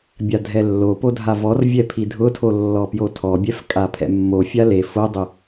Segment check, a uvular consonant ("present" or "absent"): absent